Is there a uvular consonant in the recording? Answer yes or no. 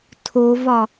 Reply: no